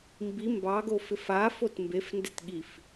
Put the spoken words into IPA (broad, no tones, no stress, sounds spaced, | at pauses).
m b i m b ɑ ɡ o f ɪ f a f o t m b e f n d e t ɠ i f